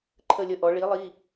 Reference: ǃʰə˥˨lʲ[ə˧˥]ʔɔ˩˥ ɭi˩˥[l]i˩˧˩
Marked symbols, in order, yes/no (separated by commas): no, no